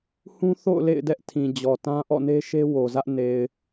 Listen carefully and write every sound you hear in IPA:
h ũ˦ θ o̰˦˨ ʊ̯ l ḛ˦˨ ɪ̯ d ɛ˦ ʔ tʰ ĩ˨ d͡ʑ ɔ˨ t ã˦ ʔ ɔ̰˦˨ n e˦ ʃ e˦ w o˨ z ä˦ ʔ n e˨ ɪ̯

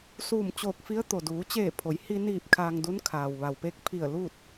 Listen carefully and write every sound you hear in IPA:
s uː˧˩ m t͡ɕ oː˧˩ k̚ f i˧˥ ə̯ t̪ o˩ d uː˩˧ t͡ɕ eː˧˩ pʰ o˩˧ j h i˧ n iː˧˩ p̚ kʰ aː˧ ŋ d u˧˥ n kʰ aː˩ w ʋ a˩ w p e˧˥ k̚ pʰ i˧˩ ə̯ l u˥˨ t̚

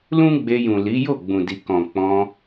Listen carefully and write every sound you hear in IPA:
l ũ˦ ɡ͡b e˧ j ũ˨ l i˨˦ j o˦˨ ɡ͡b ũ˨ d i˨ k ɔ̃˨ k͡p ɔ̃˧

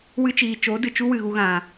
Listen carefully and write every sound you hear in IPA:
w ɨ˧ t͡ʃ iː˨ t͡ʃ o˨˦ d ɨ˨ t͡ʃ u˦ w ɨ˨ ɣ u˧ ɣ ã˨

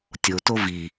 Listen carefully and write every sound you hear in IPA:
tʲ o t o v i

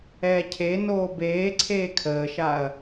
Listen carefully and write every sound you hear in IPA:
ɛː cʰ e n oː b eː ǀʰ eː kʰ əː ʃ a ɐ̯

